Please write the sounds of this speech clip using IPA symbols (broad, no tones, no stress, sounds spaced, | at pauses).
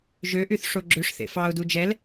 ʒ ø ʔ y θ ʂ o ɡ͡ǁ ø ʂ θ ḛ f ɑ ʊ̯ d u d͡ʒ ɛ l